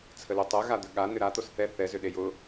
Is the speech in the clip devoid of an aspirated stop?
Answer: no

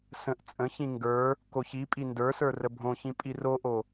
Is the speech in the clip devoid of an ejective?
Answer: no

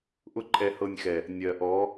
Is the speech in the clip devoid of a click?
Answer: no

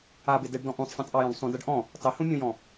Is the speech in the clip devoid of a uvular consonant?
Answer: yes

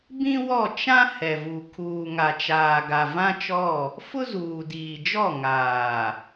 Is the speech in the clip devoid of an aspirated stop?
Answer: no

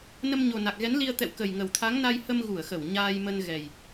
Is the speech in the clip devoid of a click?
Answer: yes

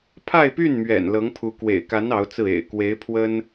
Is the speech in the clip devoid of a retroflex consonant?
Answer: yes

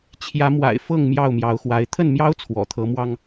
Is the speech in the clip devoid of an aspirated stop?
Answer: no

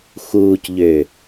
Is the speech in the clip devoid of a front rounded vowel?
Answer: no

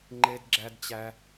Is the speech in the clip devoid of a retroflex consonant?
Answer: yes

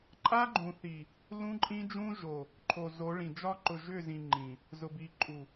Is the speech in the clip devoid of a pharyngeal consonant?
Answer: yes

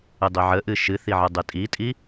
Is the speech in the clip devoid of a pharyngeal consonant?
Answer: no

